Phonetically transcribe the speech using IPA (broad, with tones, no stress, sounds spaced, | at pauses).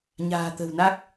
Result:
ɲ a̤ː˨˩ t̪ ə̤˨˩ w n a˦˥ k̚